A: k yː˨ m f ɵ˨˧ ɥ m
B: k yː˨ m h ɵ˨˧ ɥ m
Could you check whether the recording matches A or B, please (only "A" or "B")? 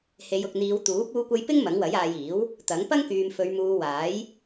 A